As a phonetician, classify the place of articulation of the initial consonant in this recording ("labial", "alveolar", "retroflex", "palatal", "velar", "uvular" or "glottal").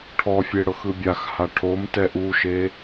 retroflex